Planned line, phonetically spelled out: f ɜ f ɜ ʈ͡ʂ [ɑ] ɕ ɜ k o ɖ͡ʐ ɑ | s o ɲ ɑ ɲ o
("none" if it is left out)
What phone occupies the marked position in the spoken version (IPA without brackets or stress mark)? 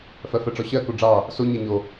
ɔ